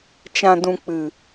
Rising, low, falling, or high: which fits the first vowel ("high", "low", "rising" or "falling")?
low